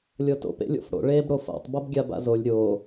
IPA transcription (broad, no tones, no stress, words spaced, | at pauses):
lʲɤto̰p ḛlʲo̰fɽo̰ ɭeːbɽofa̰tˤ bɤbɡʲaba̰zolʲ ɾʲoː